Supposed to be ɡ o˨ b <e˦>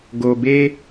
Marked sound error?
no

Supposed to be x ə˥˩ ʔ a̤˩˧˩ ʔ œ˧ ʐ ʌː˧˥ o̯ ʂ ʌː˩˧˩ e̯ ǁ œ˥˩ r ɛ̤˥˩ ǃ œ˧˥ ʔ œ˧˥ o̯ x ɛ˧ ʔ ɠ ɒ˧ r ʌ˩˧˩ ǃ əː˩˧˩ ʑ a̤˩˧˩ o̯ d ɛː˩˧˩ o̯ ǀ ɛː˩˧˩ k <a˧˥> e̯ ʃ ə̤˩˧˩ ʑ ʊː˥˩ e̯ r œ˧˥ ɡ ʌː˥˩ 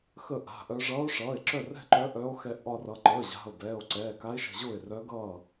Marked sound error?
no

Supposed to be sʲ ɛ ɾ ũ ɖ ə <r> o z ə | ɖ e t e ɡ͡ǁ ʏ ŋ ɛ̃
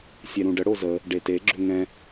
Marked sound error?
yes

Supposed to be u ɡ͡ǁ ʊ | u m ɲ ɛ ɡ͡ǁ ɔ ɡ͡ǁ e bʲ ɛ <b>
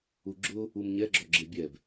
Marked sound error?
no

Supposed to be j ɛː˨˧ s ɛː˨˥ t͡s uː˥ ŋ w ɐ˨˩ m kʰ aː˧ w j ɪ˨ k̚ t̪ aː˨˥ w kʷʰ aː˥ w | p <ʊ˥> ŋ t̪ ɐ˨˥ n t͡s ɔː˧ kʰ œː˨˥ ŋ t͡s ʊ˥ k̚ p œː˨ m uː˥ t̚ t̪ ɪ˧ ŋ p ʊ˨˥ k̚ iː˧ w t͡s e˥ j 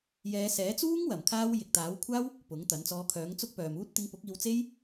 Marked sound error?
yes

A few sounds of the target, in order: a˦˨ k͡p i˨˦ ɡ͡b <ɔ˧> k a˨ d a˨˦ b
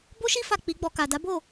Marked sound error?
no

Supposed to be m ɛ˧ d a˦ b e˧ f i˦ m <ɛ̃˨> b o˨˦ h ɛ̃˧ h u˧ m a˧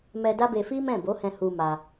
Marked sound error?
yes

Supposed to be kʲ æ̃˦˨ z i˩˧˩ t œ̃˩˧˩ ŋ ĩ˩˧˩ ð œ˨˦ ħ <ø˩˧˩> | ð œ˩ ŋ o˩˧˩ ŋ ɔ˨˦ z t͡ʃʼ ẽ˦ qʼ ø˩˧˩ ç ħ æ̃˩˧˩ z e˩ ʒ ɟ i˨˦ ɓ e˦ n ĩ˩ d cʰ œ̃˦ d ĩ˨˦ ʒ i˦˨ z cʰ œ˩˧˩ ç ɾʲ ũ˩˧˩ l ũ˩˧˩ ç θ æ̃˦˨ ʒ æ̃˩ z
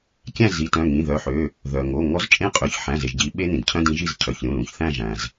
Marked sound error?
no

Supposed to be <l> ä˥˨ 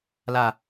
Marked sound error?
no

